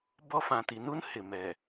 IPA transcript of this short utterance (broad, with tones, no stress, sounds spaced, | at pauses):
b ɔ˦ f ã˨ t i˨ n u˦ n h ɪ˨ m ɛ˨